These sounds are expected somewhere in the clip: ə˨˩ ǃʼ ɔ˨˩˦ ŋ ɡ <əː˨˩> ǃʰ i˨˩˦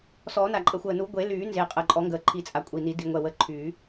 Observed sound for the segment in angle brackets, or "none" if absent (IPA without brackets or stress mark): əː˨˩˦